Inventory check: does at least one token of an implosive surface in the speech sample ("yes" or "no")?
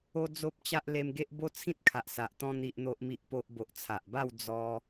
no